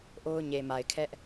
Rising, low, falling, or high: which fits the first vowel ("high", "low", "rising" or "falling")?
high